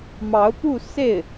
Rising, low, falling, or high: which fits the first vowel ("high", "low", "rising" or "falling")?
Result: rising